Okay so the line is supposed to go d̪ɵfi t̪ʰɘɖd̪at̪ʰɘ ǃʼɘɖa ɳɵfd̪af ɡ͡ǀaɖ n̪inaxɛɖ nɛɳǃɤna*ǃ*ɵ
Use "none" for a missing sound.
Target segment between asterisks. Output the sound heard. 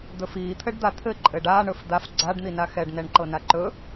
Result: ǃ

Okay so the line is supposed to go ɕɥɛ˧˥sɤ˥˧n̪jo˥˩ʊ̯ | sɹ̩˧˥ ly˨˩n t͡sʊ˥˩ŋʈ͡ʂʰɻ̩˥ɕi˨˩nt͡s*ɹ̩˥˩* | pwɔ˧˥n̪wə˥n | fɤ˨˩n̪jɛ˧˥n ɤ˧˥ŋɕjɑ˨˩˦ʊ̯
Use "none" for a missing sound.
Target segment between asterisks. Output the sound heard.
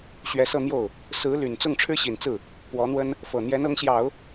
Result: ɹ̩˥˩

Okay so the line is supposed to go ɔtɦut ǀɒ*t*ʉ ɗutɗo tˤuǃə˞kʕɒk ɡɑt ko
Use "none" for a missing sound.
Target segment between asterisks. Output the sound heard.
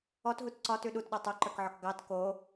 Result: t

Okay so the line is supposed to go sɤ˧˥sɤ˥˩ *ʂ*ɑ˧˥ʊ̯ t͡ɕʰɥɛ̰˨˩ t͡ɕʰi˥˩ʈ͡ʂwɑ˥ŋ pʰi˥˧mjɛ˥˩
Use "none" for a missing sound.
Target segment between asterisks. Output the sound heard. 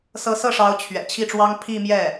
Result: ʂ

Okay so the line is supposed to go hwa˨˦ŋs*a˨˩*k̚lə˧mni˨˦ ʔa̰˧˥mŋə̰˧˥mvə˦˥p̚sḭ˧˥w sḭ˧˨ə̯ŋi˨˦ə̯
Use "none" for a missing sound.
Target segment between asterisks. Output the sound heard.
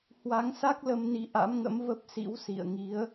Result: a˦˥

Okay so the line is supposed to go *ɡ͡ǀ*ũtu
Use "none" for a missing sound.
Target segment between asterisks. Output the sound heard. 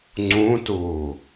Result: ŋ͡ǀ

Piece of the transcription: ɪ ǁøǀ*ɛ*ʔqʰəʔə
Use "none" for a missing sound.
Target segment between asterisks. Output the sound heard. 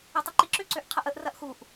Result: ø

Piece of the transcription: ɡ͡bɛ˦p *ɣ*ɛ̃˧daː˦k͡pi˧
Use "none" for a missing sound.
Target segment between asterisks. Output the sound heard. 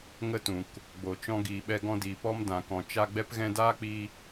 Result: ɣ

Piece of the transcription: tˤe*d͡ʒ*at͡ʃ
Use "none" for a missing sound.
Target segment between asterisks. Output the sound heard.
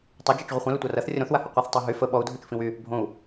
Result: d͡ʒ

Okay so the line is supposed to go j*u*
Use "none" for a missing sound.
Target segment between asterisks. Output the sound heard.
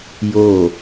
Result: o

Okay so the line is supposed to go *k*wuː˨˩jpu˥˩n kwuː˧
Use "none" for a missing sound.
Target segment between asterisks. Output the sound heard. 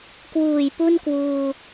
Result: k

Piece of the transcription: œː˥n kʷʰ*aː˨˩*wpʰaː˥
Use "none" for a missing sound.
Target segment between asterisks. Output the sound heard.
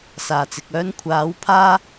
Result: aː˨˥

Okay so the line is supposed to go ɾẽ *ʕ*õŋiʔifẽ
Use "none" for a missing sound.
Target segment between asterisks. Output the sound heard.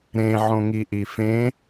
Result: ʕ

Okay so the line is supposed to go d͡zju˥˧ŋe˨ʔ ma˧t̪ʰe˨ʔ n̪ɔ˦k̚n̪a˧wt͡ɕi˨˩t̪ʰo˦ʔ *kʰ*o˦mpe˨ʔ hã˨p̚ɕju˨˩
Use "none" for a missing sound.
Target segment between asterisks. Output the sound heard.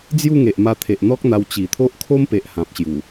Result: kʰ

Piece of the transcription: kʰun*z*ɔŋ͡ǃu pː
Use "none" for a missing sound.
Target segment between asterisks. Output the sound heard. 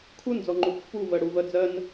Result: d͡z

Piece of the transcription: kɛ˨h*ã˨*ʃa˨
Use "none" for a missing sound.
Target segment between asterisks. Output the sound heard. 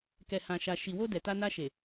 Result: ã˨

